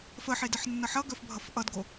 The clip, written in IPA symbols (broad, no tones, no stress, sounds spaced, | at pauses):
f ə ħ e d ə ħ nː ʌ ħ ʌ ɡ œ f bʱ ʌ f ʔ ʌ d ɡ o